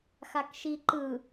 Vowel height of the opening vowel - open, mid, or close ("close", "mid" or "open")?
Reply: open